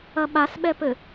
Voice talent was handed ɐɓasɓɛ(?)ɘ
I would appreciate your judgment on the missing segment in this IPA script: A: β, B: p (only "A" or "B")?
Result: B